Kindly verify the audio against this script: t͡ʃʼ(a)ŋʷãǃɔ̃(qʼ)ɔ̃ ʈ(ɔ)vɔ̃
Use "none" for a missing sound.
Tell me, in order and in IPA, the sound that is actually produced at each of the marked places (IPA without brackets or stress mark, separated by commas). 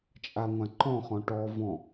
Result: a, χ, ɔ